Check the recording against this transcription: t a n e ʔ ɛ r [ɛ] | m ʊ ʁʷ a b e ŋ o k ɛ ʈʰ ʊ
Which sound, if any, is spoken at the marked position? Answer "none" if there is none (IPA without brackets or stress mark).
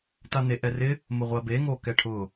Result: ɪ